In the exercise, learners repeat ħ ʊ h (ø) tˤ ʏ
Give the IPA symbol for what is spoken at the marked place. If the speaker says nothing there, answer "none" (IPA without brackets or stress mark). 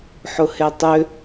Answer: e